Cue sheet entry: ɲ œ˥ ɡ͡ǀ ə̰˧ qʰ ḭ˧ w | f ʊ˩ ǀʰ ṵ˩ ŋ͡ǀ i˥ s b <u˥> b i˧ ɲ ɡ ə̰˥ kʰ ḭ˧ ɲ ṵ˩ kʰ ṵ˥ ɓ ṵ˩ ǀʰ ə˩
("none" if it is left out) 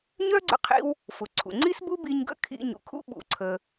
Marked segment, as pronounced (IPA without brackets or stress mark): u˥